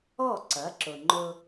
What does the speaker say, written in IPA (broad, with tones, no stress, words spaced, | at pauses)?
ɔ˥˩ǀɐ˩˥ǁʊ˩ŋ͡ǃʊ˧